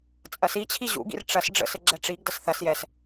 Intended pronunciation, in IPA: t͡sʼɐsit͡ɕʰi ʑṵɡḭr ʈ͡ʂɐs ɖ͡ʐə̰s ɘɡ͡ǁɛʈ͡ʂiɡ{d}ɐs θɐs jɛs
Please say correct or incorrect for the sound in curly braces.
correct